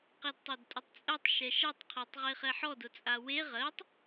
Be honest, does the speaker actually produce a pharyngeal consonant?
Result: yes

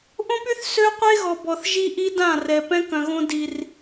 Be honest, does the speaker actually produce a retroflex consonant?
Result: no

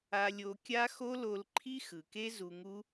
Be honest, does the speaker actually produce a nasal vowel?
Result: no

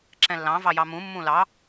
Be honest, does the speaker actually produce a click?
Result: yes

